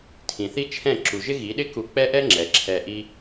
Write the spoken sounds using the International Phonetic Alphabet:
tʰĩ˨θi˦t͡ʃʰɛ̃˦˨ ǁu˨ʒɪ˦ɣi˨˦ɗɪ˦ ku˧k͡pɛ˦ʔɛ˦ ŋ͡ǁɛ˨ǁʰɛ˧ʔi˦

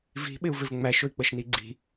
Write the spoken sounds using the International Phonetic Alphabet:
vi̤ ɓɪu̯vɪvŋ͡mæʃʊi̯ k͡pəʃniɡ͡ǀi̤

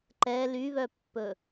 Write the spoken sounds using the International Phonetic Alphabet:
ǃɛ lyβœpːɵ

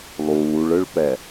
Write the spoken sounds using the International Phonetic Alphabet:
lˠuːɭɯɭpɛ

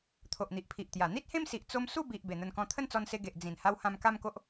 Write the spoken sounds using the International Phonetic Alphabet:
t̪ʰo˨ʔn̪i˨ʔpʰi˨ʔt̪ja˨˩ n̪i˦t̚hẽ˦msi˨ʔ t͡so˧msu˥˧ bi˨ʔ be˨˩n̪ə˧nkɔ̃˧ t̪ʰə˦nt͡sɔ˧nse˧ ɡe˨ʔ d͡zĩ˨˩n ha˧whã˧m ka˦mko˦ʔ

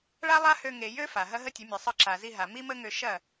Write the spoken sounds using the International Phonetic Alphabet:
ɭa˦ lˠa˦hø˧ ŋe˨jø˦ fa˨ɦɐ˦ ɦə˦tʲə˨˦mʲə˨sˤɯ˧ ǁa˨zi˧ɦa˨ mi˦mə˦ŋø˧ ʃɐ˦˨

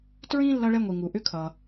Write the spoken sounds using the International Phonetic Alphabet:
tɹĩ˥ lːʌ˥ɭɛ˥ŋʷi˩ ŋu˩ ʔʏ˥kʰʌ˩

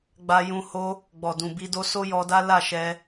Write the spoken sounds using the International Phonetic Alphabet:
ɡ͡ba˦jũ˦ ho˧ | ɡ͡bɔ˨dũ˨bi˧do˦ so˦jɔ˧da˦ la˦˨ʃɛ˧

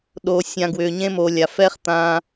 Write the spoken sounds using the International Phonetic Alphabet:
ɗo˨ sʲã˨ ɡwʏː˨ɲẽ˦moː˨lʲa˨ fɛ˦χ t̪ã˦

